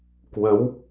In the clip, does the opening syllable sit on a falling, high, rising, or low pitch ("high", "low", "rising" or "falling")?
rising